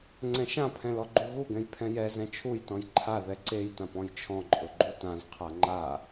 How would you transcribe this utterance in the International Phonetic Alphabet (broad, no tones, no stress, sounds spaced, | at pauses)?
ŋ͡ǀ ɛ̃ ʃ ã pʰ ɛ̃ l ɔ ɡ͡ǃ u ɣ u ɡ ɛ̃ j pʰ ɛ̃ j ɛ z ɛ̃ t͡ʃʰ u j t ɔ̃ j ǃʰ a ð ɛ ǀ e j t ã p ɔ̃ j t͡ʃʰ ɔ̃ ǃʼ ʊ ɡ͡ǃ u t ã z qʰ a ŋ͡ǃ a